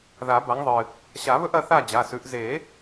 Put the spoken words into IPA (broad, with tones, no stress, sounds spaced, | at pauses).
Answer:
ð a˨˩˦ b a˨˦ ŋ ðˤ ɨ˩ | ɕ a˨˩˦ β ɵ˦ ʔ ɐ˦ θ a˥˨ d͡ʑ a˩˧˩ s ʉ˨˦ ʔ z e˨˩˦